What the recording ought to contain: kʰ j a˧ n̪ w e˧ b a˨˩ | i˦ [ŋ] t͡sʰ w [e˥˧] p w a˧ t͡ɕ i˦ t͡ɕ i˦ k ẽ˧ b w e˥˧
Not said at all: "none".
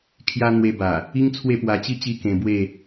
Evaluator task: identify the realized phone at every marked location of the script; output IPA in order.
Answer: ŋ, e˥˧

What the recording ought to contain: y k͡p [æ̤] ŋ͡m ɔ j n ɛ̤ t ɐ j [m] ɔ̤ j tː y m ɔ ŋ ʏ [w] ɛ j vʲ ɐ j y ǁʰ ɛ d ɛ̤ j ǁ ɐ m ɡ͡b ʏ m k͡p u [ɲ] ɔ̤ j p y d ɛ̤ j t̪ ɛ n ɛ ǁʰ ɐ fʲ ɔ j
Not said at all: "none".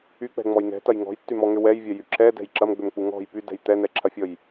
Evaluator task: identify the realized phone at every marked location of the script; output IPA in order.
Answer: ɛ̤, ŋ, w, ŋ

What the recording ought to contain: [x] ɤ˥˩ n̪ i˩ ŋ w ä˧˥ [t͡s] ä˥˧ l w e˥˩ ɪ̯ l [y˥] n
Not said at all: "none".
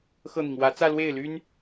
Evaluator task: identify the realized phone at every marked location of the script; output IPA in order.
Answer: x, t͡s, y˥

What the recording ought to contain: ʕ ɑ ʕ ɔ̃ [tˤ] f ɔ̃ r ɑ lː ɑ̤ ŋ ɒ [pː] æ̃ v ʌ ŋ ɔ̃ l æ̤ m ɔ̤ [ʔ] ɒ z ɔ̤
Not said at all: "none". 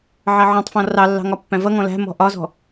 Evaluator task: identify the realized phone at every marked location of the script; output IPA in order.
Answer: tˤ, pː, ʔ

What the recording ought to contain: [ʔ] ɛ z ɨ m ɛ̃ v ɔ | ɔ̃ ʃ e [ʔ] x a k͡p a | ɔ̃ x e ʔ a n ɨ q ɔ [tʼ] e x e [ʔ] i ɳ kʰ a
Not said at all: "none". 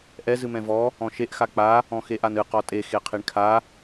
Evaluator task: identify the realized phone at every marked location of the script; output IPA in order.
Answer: ʔ, ʔ, tʼ, qʰ

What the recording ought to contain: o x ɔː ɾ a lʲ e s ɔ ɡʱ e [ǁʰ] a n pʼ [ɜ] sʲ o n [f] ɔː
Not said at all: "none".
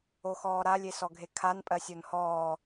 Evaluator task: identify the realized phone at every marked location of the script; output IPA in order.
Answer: kʰ, ɜ, h

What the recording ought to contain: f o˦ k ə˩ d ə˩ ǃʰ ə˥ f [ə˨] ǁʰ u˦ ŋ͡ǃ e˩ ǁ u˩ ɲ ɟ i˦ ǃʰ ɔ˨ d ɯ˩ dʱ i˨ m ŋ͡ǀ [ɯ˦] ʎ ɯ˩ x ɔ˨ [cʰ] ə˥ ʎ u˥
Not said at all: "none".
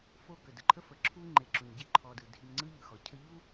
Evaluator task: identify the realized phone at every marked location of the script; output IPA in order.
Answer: ə˩, ɯ˦, cʰ

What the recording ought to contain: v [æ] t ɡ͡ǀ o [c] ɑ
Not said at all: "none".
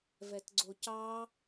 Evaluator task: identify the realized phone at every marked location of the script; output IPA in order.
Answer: ɛ, c

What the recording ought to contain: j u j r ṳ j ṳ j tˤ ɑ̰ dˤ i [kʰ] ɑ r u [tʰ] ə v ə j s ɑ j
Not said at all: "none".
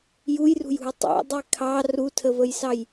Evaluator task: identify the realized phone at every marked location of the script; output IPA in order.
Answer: kʰ, tʰ

